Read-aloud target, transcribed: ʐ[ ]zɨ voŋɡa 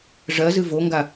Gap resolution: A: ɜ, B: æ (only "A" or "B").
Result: A